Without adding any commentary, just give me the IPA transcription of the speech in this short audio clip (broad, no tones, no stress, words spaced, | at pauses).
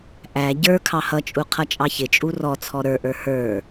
ʔæ ɟə˞ kʰɑhʌt͡ʃʼu qʰʌt͡ʃʼɑçɪt͡ʃʼu rɔ t͡sʰɔɾə˞ʔə˞ hə˞